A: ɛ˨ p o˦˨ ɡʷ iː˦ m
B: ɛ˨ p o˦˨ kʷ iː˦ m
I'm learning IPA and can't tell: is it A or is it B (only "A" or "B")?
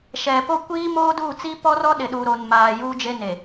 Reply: B